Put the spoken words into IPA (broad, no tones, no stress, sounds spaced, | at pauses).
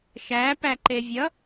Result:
ʃ æ p æ ǃ e vʲ ʌ